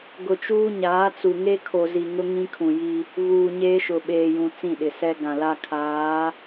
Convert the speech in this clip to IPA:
ɡ ʊ˨ t͡ʃ uː˦ ɲ aː˨˦ t͡s u˨ ŋ e˦ kʰ o˨ z i˨ ŋ ʊ˦ ŋ ĩ˦ kʰ ũ˨ j i˦ | v uː˨ ɲ eː˦ ʃ ʊ˨ ɓ eː˨ j ũ˨ t͡s ĩ˦˨ ɗ ɪ˨ s ɛ˦ ɡ ã˨ l a˦ kʰ aː˨˦

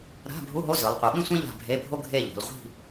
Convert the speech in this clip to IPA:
ɾ a̤˧˥˧ bʱ u˧˥˧ ɦ o˧˥˧ z ɯ˩˧ lˠ qʷ ɯ˩˧ ɓ ĩ˥ sʷ ĩ˥ ʎ a̤˦˨ bʱ e˧˥˧ bʱ o˥ ɡʱ e˦˨ ʎ o̤˩˧ l ʁʷ i̤˦˨

